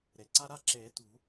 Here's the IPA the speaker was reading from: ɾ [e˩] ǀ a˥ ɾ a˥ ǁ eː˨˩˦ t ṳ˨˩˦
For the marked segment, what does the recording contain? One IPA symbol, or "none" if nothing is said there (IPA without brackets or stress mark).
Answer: e˩